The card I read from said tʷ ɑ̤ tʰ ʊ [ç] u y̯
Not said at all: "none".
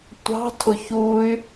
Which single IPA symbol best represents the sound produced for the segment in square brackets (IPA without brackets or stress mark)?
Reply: ç